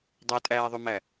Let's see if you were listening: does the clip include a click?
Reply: no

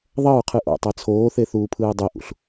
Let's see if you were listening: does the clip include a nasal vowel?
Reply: no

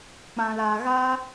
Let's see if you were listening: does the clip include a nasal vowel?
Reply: yes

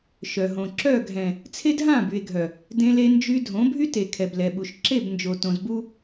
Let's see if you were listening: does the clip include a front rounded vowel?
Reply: yes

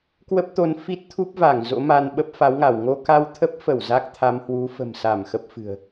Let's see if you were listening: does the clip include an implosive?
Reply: yes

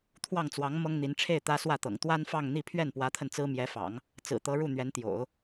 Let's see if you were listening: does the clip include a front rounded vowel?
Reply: no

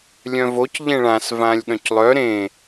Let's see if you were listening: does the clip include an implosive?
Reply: yes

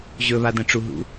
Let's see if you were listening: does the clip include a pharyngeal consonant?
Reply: no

